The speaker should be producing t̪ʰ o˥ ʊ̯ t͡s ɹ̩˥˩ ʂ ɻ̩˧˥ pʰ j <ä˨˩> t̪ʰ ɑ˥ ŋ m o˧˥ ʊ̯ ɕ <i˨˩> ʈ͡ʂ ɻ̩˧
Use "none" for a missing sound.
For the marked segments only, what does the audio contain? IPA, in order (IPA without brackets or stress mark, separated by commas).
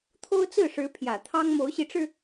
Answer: ä˨˩, i˧˥